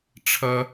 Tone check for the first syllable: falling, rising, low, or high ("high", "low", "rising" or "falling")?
high